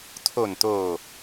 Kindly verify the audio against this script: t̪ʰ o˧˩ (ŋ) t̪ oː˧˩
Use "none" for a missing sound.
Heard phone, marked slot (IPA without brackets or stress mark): n